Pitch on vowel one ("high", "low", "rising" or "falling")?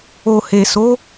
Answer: low